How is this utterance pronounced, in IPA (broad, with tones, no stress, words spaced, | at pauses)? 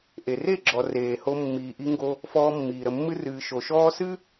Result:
ʔe˨re˦˨ɡ͡ǁɔ˨ reː˨ho˧ mːiː˨ʔi˧ŋɡo˧ | fɔː˧mːiː˨ ɾə˨mːɨ˧rɨː˨ ʃo˨ʃɔː˦ sɨ˦